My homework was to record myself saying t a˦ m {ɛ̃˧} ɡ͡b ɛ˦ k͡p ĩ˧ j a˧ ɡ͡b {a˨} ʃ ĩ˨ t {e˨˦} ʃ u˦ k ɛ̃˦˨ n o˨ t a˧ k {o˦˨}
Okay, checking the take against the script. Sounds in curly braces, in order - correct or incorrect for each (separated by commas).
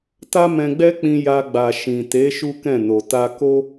correct, correct, correct, incorrect